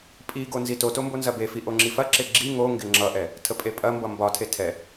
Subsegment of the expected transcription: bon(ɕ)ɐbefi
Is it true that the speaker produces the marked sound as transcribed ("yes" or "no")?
no